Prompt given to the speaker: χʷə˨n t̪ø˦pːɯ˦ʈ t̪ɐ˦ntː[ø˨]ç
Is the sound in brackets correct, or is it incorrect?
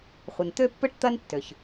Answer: incorrect